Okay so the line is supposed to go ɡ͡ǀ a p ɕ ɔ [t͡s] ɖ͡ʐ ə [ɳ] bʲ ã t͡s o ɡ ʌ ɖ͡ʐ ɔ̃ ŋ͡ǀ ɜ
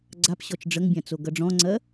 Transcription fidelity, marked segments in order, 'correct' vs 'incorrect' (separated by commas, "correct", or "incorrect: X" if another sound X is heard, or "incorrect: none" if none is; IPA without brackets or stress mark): incorrect: t͡ʃ, incorrect: ŋ